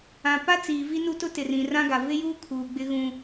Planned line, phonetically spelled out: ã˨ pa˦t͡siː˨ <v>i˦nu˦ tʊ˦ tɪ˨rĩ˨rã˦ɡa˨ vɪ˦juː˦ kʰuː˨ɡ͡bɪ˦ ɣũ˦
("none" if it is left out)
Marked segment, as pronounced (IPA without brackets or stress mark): v